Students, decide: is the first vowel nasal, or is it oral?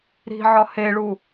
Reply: oral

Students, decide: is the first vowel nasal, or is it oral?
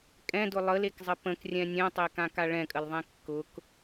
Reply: nasal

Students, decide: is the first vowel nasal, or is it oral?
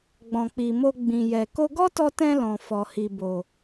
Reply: nasal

